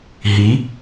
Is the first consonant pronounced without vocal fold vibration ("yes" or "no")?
no